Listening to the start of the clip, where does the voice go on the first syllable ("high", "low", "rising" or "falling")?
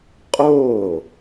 falling